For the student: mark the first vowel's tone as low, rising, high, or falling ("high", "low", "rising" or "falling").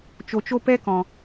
low